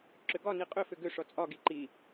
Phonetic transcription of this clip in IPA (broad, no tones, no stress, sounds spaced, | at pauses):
ǁ ʏ ɡ ɒ n i qʼ ʏ f ʏ ɡ ʏ ʂ ɔ t͡sʼ ɒ ɡ i ǃ i